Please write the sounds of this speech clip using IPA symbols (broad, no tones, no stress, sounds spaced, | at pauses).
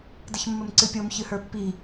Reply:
d ə ç mː ə m ǀ ɨ pʲ o m ç ɨ h ə˞ pː i